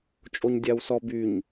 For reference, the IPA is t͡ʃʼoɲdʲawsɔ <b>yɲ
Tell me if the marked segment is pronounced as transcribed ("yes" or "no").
yes